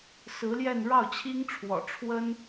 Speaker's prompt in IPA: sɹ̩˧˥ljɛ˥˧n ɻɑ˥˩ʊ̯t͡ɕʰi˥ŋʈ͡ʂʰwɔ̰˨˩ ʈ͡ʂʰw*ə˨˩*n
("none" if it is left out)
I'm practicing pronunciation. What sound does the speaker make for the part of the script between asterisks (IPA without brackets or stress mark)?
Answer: ə˥